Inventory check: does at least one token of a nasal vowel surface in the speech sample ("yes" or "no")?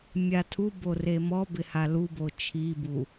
no